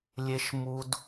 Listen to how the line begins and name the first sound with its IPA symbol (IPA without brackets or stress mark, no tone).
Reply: lʲ